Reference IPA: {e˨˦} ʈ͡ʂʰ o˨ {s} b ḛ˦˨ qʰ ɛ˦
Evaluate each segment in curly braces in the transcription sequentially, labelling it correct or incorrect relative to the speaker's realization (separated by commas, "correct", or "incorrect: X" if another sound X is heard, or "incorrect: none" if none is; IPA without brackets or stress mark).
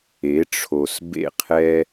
correct, correct